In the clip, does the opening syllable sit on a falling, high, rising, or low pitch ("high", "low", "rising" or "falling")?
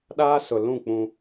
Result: high